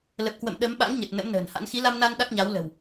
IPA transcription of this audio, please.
lə˨˩p̚kwə̰˧˨m ɗə˨˦m ɓa̰˧˥ŋɲə˨˩t̚ nə̰˧˥mnə̤ː˨˩nha̰˧˥n xi˨˦la˧mna˧n ɗa˦˥k̚ɲa˨˦wlə̤˨˩w

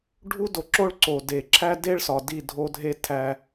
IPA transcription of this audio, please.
ɖʱu˦do˨ ǁo˦ɭǀo˨ de˨ǁʰæ˦de˦ɭ sɒ˨di˦˨dʱo˦dʱe˦ tʰæ˦

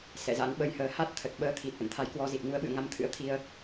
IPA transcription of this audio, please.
sɛ̰˧˨za̰˧˥nɓə˧j həː˧ ha˦˥t̚ t̪ʰə˨˩t̚ɓəː˧t̪ʰi˨˩t̚ ʔə̰˧˨nt̪ʰa˨˦jkwɔ˧zi˨˩t̚ ŋu˨˦ə̯ɓɨ̰˧˨ə̯ŋa˨˦m t̪ʰɨ̰˧˥ə̯t̪ʰi˧ə̯

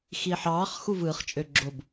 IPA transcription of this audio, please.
xiːħɑːχ xuvɯːχt͡ʃʼøɡ͡ǁob

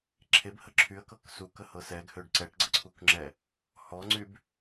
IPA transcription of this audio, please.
ǁʰebhə ǁʰyə̯kɤk sukəhɤ sɛɡhøɖ ǀɛʈɡ͡ǀəǀʰukŋ͡ǁɛ | hɔŋ͡ǀyb

